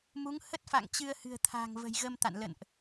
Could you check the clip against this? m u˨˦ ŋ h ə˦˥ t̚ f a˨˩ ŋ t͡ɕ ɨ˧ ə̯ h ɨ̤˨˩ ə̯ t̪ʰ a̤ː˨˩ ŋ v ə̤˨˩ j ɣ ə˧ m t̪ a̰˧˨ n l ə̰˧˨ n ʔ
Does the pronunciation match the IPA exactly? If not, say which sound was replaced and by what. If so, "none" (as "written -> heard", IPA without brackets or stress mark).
a˨˩ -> a̰˧˨